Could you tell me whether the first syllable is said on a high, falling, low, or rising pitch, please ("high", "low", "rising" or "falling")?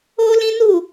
high